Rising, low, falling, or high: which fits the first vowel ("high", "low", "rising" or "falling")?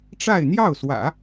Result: falling